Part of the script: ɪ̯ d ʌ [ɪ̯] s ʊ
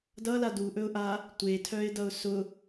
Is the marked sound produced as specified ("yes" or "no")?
no